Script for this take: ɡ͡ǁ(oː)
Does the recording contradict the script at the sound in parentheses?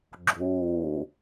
no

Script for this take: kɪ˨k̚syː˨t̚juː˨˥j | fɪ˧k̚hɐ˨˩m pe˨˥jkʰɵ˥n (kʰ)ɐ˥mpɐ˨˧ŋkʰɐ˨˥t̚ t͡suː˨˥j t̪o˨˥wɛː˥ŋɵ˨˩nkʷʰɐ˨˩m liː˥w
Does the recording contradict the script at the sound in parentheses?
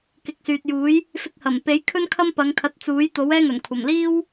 no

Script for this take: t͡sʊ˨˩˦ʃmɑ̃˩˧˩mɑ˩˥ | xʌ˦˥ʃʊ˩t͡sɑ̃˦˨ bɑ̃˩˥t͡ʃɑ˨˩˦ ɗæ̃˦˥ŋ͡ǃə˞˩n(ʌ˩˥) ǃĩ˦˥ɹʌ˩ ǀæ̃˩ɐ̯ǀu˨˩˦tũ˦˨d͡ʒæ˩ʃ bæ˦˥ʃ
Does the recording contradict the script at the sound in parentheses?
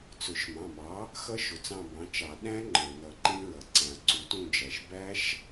yes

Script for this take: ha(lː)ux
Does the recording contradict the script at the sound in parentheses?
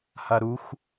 yes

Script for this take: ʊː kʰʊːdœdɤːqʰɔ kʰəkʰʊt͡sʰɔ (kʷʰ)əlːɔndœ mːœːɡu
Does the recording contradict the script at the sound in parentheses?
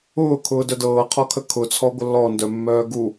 yes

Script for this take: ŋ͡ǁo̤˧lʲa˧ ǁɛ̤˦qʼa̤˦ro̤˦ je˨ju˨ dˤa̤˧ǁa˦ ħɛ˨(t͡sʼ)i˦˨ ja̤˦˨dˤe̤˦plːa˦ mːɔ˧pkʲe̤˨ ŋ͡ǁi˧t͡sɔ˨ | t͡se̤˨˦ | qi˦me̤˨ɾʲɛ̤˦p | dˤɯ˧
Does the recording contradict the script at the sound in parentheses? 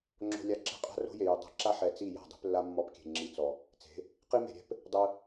yes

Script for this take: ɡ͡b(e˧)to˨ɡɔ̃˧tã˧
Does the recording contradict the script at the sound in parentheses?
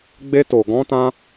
no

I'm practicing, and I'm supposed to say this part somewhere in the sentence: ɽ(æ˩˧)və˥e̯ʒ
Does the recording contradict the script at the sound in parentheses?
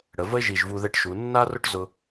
yes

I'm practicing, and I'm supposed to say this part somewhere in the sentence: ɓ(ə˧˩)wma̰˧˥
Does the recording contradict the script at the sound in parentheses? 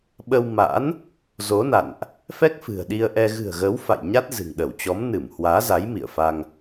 yes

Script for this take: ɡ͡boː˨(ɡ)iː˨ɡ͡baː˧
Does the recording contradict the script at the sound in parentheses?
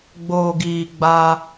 no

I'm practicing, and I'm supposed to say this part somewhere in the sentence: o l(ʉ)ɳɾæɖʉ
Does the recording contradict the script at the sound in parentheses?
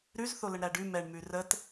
yes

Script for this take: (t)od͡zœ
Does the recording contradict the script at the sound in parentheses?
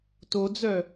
no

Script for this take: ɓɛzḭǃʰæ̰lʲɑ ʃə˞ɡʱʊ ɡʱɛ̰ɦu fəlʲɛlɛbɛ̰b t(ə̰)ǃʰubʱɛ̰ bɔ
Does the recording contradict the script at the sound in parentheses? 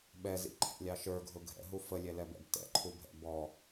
yes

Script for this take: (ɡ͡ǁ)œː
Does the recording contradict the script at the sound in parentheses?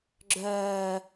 no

